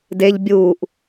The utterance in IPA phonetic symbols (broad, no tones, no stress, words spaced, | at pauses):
deʎ bʲuːʔ